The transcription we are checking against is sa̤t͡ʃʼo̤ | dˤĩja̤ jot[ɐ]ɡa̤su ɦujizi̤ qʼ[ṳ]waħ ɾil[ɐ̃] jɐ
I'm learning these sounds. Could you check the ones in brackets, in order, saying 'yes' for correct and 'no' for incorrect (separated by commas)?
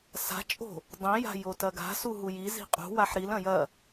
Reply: yes, yes, yes